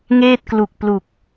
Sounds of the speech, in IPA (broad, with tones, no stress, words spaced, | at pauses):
ŋeː˥˩t̚klu˨˩k̚plu˨˩k̚